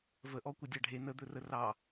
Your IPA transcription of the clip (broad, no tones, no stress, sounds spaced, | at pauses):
v ə ʔ ɔ kʷ ə dʲ ɑ ɖʱ e n ə d̪ ɵ r ə r ɑ